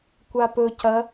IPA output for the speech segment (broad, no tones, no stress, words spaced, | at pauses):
kʷapɵ cɐ